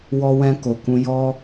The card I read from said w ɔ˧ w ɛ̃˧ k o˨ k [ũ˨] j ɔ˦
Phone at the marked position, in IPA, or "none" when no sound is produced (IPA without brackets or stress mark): ũ˧